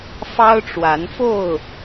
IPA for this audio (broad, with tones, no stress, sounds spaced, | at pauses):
f ɑ˦ ʊ̯ ʈ͡ʂ w a˨˦ n f o˥˨ ʊ̯